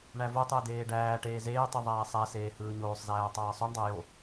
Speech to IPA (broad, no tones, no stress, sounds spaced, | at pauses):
ɳ æ v o tˤ ɯ ə̯ d eː ɖ æː ʈ eː z eː tˤ ɯ ðˤ æː sˤ æ s eː h ɯː ɲ oː sˤ z æː tˤ ɑː sˤ o ɳ dˤ æ j o